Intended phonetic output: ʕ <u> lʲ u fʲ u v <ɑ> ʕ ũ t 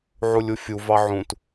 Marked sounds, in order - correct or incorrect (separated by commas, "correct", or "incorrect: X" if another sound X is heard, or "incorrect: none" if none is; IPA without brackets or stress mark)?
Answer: correct, correct